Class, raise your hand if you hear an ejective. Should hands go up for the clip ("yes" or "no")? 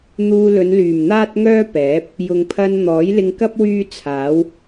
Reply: no